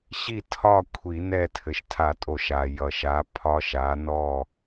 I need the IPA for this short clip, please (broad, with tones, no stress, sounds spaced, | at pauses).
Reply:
ɕ i˥˨ tʰ ɒ˥˨ kʷʰ i˨˩˦ n ɛ˥˨ tʰ ɘ˨ ʃ tʰ a˨˩˦ tʼ o˨˩˦ ʃ a˨ j ʌ˨ ʃ a˨˥ pʰ ɒ˦˥ ʃ a˨˥ n ɔ˥˨